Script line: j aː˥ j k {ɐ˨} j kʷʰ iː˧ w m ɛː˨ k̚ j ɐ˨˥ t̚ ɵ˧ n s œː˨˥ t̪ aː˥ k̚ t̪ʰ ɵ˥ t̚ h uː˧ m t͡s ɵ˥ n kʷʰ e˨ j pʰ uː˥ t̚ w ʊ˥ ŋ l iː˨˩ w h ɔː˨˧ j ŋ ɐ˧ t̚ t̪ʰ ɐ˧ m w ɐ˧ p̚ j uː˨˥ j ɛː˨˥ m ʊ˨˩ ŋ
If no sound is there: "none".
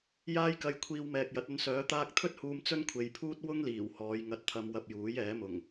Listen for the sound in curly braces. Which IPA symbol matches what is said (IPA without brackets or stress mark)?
ɐ˧